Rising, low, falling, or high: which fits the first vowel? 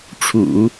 low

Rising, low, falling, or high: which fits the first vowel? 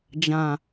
low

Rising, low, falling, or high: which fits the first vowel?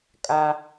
high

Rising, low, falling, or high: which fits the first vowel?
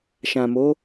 low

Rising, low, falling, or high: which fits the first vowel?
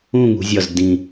falling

